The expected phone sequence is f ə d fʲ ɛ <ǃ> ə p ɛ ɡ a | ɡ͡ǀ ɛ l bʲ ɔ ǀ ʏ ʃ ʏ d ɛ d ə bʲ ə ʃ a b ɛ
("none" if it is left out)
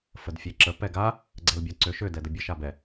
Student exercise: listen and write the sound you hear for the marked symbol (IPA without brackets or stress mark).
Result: ǁ